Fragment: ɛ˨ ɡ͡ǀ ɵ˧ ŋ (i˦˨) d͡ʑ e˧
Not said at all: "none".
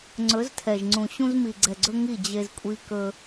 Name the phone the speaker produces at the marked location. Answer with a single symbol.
i˦˨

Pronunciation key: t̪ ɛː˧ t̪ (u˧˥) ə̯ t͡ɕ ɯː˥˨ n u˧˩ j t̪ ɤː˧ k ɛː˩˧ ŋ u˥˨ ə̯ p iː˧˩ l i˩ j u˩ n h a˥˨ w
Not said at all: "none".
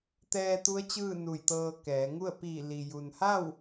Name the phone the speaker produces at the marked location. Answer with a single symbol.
u˧˥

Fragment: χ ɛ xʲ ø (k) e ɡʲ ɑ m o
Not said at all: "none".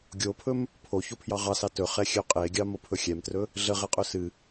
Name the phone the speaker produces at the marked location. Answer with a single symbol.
qʼ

